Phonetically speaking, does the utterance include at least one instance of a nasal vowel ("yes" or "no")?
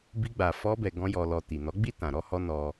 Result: yes